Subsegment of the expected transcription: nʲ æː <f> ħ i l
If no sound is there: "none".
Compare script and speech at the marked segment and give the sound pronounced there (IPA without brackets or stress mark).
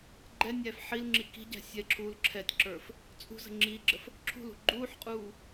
f